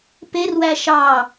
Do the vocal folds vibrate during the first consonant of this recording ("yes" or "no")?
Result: no